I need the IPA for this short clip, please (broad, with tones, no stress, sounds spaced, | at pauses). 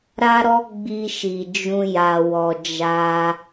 ɾ a˦ ɾ ɔ˦ ɡ͡b i˧ ʃ i˨ d͡ʒ ũ˧ j a˨ w ɔ˨ d͡ʒ a˧